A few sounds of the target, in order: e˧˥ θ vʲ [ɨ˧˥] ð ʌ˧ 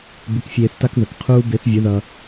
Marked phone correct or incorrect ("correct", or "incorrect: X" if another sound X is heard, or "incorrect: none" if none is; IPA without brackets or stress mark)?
incorrect: ə˧˥